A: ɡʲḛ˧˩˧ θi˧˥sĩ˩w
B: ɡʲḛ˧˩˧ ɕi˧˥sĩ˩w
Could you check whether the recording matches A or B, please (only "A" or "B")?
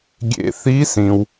A